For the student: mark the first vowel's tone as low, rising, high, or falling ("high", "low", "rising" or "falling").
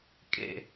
low